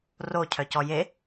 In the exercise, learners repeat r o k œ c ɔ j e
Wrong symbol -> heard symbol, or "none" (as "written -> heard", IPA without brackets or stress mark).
k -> cʰ